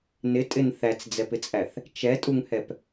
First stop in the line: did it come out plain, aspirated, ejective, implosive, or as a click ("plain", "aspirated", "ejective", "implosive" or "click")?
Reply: ejective